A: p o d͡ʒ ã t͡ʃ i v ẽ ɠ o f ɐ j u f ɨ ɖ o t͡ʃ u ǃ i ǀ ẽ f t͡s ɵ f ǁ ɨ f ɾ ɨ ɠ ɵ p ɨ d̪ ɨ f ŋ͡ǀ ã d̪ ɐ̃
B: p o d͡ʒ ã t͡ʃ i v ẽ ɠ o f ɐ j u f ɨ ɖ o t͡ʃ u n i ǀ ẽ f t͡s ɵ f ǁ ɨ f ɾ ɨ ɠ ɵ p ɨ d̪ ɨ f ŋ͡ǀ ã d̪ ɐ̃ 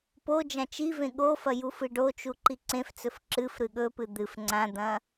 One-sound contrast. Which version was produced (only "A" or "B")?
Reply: A